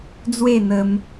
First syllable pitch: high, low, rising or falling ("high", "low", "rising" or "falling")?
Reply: falling